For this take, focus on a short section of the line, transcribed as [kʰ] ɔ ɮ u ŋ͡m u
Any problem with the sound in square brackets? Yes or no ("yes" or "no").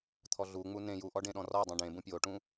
yes